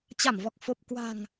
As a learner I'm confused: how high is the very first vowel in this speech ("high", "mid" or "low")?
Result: low